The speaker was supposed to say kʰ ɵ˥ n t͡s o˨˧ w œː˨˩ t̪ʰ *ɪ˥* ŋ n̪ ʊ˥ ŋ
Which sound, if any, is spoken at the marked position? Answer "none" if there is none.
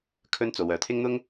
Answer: ɪ˥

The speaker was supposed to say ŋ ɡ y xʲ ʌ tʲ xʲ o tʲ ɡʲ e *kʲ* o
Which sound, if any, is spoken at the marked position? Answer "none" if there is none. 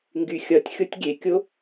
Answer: kʲ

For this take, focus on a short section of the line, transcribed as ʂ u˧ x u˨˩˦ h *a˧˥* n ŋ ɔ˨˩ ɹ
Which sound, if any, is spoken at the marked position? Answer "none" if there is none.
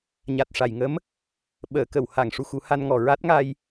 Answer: a˧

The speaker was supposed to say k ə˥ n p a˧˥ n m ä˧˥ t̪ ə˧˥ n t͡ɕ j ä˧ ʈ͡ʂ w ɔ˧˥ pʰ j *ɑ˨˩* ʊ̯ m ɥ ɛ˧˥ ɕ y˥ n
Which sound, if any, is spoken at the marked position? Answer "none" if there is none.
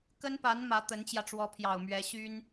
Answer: ɑ˨˩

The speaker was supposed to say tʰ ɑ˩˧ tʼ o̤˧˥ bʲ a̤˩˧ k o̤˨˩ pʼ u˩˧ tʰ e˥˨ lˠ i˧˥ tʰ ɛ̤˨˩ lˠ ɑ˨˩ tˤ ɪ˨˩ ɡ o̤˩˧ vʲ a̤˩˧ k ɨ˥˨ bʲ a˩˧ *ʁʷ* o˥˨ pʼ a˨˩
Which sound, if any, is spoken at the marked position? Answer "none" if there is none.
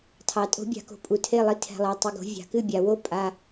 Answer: w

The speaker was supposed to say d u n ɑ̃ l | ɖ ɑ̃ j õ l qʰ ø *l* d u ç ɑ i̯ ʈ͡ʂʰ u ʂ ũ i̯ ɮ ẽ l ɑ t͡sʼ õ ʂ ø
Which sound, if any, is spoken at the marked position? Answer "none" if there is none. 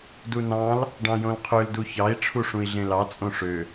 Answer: l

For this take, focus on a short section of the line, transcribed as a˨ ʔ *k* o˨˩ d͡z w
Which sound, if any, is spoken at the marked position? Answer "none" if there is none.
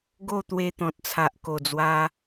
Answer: k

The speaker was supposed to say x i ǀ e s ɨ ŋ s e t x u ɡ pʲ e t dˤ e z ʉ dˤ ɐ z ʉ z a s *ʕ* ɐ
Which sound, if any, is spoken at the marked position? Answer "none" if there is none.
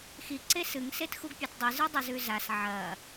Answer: ʕ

